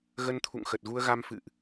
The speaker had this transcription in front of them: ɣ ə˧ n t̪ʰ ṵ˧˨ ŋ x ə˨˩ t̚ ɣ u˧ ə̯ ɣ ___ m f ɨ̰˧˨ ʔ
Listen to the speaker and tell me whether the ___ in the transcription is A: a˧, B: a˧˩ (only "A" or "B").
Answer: A